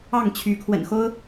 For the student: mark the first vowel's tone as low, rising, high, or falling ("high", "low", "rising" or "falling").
falling